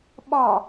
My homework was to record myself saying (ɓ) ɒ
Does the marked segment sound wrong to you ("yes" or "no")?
no